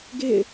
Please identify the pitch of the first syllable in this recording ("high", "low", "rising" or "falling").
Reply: falling